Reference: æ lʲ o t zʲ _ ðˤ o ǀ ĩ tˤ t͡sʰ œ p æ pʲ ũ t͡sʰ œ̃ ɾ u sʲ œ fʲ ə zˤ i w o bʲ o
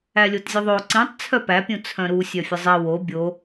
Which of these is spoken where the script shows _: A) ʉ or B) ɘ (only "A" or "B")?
B